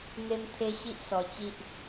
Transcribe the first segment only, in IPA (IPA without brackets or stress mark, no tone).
n̪